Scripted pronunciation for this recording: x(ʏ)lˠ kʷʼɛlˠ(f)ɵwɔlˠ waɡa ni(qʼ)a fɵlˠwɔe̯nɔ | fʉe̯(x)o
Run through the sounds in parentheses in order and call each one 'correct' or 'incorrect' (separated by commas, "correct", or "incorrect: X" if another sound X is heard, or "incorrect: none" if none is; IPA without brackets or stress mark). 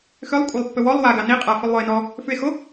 correct, incorrect: pː, correct, correct